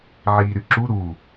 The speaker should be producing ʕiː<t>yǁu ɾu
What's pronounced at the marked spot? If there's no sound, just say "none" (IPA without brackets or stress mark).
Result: ɾ